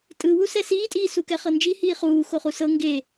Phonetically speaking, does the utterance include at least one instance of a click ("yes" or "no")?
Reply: no